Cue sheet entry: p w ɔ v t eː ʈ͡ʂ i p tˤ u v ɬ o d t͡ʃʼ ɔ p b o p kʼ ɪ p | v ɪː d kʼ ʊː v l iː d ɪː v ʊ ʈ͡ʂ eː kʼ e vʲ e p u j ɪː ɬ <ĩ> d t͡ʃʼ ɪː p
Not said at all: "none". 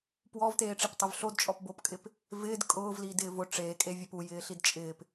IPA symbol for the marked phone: i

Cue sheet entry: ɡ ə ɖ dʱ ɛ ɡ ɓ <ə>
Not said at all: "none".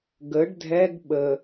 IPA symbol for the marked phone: ə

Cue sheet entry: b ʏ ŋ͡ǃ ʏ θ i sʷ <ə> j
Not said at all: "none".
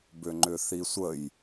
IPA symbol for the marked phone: ə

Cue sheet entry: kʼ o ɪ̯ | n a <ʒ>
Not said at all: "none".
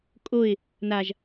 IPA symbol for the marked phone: ʒ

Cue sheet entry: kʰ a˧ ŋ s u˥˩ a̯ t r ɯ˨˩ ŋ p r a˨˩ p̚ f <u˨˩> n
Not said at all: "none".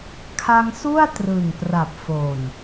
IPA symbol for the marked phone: o˨˩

